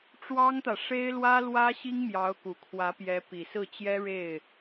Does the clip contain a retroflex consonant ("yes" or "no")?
yes